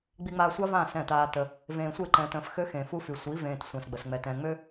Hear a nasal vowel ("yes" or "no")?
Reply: yes